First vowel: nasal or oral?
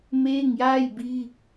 oral